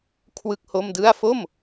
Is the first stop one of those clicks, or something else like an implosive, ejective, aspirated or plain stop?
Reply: aspirated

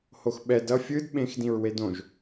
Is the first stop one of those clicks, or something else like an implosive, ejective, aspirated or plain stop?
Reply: implosive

